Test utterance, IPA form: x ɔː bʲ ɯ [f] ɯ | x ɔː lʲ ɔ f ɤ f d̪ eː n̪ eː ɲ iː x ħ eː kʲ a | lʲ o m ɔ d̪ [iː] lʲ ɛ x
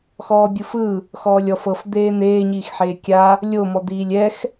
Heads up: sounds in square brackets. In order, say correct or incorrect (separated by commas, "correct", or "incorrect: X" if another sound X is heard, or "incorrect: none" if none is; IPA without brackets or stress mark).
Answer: correct, correct